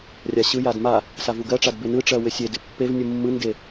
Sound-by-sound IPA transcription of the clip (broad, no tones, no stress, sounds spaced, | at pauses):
rʲ a ɕ ɯ j a d m a | s a v u ɡ ɜ ʈ͡ʂ a d b ɪ n ɯ ʈ͡ʂ ɜ w ɪ sʲ e d ɪ pː e v nʲ ɯ mː ɯ n d e